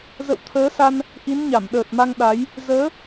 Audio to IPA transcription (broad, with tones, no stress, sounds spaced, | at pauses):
z ə̰˧˨ w t̪ʰ əː˨˦ s a˧ n | ʔ i˨˦ n ɲ a˧˩ m ɗ əː˨˩ t̚ m a˧ ŋ ɗ a˨˦ j | z əː˨˦